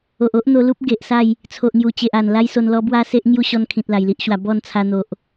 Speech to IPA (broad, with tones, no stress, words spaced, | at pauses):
o˨ʔo˦ʔn̪o˧lu˦p̚ ɡe˨ʔsa˥˧j | t͡sʰo˨ʔŋju˨˩t͡ɕe˨ʔa˨˩n la˦jso˧nlɔ˦ bwa˥˧se˦ʔ ŋju˥˧ɕɔ˧n kʰĩ˨t̚la˨˩jli˦ʔɕwa˧ bɔ˥˧nt͡sʰa˧n̪o˨ʔ